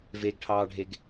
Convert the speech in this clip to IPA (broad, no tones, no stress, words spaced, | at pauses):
veɡʈʰɑːɖʱeɡ